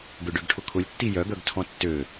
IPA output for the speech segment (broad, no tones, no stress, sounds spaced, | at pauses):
ɡ ʏ ɖ ø ɡ ʈʰ ʊ kʰ ʊ lʲ tː i j œ ɡ œ ɡ tʰ ɔ̃ tː ø